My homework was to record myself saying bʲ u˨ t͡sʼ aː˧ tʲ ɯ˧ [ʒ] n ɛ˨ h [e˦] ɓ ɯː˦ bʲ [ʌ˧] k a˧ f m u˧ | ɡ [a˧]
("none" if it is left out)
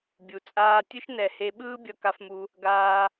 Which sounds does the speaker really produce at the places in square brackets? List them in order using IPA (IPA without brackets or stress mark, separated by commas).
ʃ, e˧, ʌ˧, aː˧